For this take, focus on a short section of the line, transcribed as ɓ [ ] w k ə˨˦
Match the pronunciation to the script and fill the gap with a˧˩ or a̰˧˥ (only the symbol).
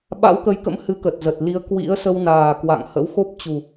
a̰˧˥